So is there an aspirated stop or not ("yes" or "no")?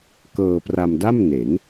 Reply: no